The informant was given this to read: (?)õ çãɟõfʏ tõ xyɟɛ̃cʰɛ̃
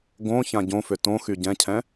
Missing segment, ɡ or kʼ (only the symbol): ɡ